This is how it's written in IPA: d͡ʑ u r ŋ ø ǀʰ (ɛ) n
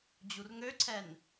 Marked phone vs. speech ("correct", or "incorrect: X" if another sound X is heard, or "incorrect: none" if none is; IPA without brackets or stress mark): correct